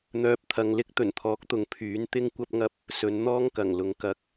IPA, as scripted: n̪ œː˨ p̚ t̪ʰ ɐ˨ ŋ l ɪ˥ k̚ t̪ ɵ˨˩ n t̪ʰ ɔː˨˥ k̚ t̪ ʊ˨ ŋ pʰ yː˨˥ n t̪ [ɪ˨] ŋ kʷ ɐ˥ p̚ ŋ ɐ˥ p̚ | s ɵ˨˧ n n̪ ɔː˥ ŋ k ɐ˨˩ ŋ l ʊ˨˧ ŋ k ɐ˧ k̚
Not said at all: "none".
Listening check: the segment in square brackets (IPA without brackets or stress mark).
ɪ˥